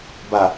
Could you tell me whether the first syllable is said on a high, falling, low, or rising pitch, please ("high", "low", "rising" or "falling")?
low